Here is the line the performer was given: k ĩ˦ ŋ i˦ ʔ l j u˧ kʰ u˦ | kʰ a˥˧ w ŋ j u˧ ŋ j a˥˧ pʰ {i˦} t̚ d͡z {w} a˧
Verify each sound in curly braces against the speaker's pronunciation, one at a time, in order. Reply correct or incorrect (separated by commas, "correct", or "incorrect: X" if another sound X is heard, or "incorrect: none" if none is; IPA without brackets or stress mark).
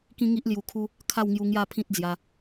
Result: incorrect: ĩ˦, incorrect: j